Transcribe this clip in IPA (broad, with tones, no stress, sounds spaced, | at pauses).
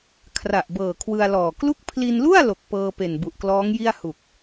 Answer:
kʰ r a˨˩ ʔ b ɤː˨˩ kʰ w ɯ˧ a̯ l ɔː˨˩ k l u˥˩ k̚ pʰ l i˧ n l u˥˩ a̯ l o˨˩ k̚ p ɤː˧ p e˨˩ n b u˨˩ ʔ k l ɔː˦˥ ŋ j i˥˩ a̯ h u˨˩ k̚